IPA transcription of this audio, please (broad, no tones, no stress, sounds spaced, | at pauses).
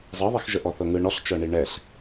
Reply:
zˤ ɤ ðˤ i x ʒ ə ʔ ɔ θ ɤ ŋ ɯ ɳ ɔ ɬ t͡ʃ ɤ ɳ i ɳ ɛ ɬ